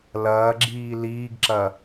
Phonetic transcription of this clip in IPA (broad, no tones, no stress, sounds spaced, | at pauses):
l ɐː ɡ͡ǁ iː l iː ɡ ǁ ɐ